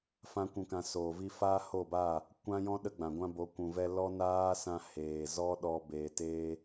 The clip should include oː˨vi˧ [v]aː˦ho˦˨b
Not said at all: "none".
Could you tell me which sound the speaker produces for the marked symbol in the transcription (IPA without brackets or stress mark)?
f